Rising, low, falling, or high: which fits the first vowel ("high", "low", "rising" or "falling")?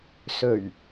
low